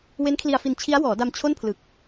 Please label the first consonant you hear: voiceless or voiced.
voiced